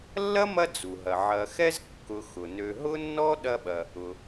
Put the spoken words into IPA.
lːɐ˥mɐ˦ d͡zu˩ɦɐ˩ ʕɐ˨xɛ˥z kːʊ˨xʊ˩nø˨ ɦʊ˥nːɔ˥ ɗɐ˥ɓɐ˨ | ʊ˨

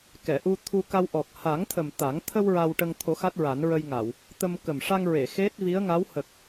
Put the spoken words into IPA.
kɛ˨˩˨ʔu˧t̪ʰu˧ka˧w ʔɔ˨˩k̚ha˨˩˦ŋt̪ʰə˨˩m t̪a˨˩˦ŋ t̪ʰə˧w ɹa˧wʈə˧ŋ t̪ʰo˨˩˦ xa˦˥t̚ɹa˨˩˦nɹə˧jŋa˨˩˨w | t̪ə˧m kə˨˩mʂa˧ŋɹe˨˩˨ xe˦˥t̚ vi˧˥ə̯ŋa˧˥w hə˨˩k̚

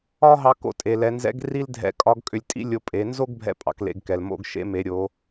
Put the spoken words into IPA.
ɒ˥ɦɑ˧ ko̰˧tʼe˩lɛ˩˧nzɛ̰˧˥ɡ ri˥ldʱɛ̰˧˥kʼɒ˧˥ɡ kʼʏ˧lʲ tʼḭ˥lʲo˧ pʼe˩˧nzo˥ɡ bʱɛ̰˧˥pʼɑ̰˩˧klḛ˩˧ɡ kɛ˩lmo̰˧ɡ ʃḛ˧˥me˩˧ɾʲo˩˧

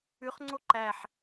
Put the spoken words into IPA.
ʉχŋ͡ǀo ǃæħ

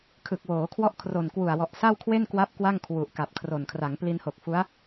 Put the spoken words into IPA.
kʰɯ˨˩k̚woː˩˦ kʰwɔ˥˩ʔkʰro˨˩nkwu˨˩a̯wɔ˨˩ʔ sa˥˩wkʰwe˥˩nkwa˦˥p̚ kwa˥˩ŋkʰwu˨˩ʔka˨˩p̚kʰro˨˩n kʰra˩˦ŋpli˧nho˨˩k̚ fu˦˥a̯

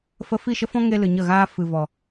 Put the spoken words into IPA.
fə˧fi˦˨ʃə˦fɔ̃˦ ŋe˦lɨ˨ɲə˦˨ɣaː˦ fɨ˨vɔ˨

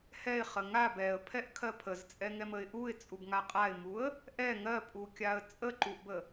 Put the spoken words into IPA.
hɛɪ̯χə ŋab ɛə̯pʰɛʔkʰɜ pʰəzt͡sʼɛŋɛməɪ̯ ʔuɪ̯t͡sʼubŋa qʼaɪ̯muə̯ | ʔɛ ŋɜpʼukʲaə̯ t͡sʼəǃuʔbə

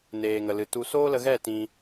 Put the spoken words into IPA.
neː˨ŋə˨lɨ˨ tu˨soː˦lə˧ɣɛ˦˨ tĩ˧

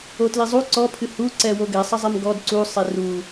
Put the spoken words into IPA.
otlizˤu ǀɔ pʰɨhu ǀɛwoɡɛ sˤɐzˤɛmɡɔd ǀu sˤeru

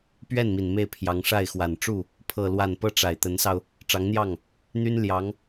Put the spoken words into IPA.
pɥɛ˥˩nmi˨˩n me˥˩ɪ̯pʰjɑ˧˥ŋ ʂa˥˩ɪ̯xwa˨˩n ʈ͡ʂu˥˩ | pʰɤ˥˧lwa˥˧n pɤ˥˩ʈ͡ʂa˨˩ɪ̯t̪ə˧˥nsɑ˧ʊ̯ | ʈ͡ʂɑ˧˥ŋn̪jɑ˥˩ŋ | n̪y˥n ljɑ˧˥ŋ

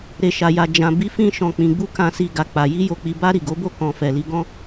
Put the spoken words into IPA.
ɾe˨ ʃa˨ja˨ d͡ʒã˨bi˨˦fĩ˧ ʃɔ̃˨k͡pĩ˨ɡ͡bu˧ kã˨si˨ ɡa˨k͡pa˨ ji˧jo˨k͡pi˨ba˧ ɾi˨ɡo˨˦bo˦˨ kɔ̃˨ fɛ˨li˧ɡɔ̃˦

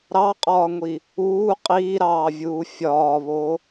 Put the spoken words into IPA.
ɾɑqʼɒːŋʷi | uː qʼiːɾɑːvʲuː fʲɒːβo

